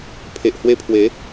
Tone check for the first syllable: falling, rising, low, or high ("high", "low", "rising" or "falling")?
low